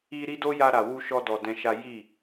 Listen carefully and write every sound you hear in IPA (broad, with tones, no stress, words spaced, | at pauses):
i˧ɾi˦do˦ja˧ ɾa˨wu˧ʃɔ˧ dɔ˧dɛ̃˦ʃa˦ ji˦˨